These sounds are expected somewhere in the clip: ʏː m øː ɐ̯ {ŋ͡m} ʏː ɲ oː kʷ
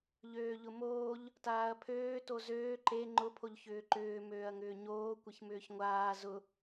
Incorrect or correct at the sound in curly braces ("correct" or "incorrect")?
incorrect